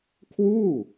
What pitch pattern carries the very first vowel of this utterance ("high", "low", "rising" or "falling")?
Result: falling